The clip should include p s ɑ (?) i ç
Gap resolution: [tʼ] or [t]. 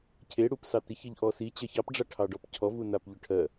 t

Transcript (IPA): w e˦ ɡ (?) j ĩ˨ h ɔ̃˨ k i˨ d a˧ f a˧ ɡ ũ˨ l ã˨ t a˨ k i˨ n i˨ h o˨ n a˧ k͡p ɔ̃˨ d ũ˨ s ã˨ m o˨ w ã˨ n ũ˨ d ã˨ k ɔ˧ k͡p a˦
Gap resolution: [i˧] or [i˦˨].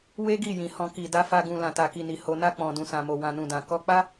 i˦˨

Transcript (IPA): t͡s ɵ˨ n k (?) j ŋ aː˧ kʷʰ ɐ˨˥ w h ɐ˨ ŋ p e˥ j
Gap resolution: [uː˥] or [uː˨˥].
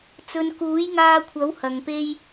uː˨˥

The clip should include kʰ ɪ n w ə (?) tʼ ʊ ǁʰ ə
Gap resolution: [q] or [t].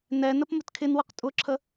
q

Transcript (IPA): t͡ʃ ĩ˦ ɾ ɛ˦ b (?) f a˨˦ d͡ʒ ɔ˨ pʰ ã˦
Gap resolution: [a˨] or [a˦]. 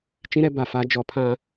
a˨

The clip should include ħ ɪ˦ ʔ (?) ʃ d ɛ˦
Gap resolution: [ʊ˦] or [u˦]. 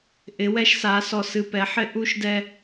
u˦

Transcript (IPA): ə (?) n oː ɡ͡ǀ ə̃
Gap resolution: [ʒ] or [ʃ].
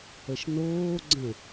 ʃ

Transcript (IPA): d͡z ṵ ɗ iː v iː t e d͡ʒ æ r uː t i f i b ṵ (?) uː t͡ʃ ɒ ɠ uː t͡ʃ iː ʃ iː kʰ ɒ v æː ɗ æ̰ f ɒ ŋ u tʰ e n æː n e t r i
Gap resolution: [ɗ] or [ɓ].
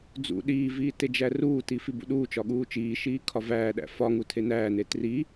ɗ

